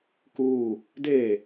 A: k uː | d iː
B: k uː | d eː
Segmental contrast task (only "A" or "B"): B